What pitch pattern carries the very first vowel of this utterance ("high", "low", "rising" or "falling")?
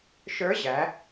rising